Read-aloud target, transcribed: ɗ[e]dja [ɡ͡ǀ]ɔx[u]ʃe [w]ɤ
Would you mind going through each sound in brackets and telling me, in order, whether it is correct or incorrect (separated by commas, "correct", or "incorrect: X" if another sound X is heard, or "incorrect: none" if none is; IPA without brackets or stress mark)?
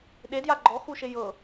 correct, incorrect: ɡ͡ǃ, correct, incorrect: j